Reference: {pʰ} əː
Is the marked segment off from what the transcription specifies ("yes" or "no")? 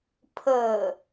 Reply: no